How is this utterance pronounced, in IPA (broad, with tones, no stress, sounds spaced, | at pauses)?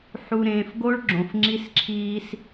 ħ u˨ ɾ ẽː˨ f ɡ o˦ ɭ ɡ͡ǁ õ˨ f ŋ͡ǁ i˦ s ǁʰ iː˦ s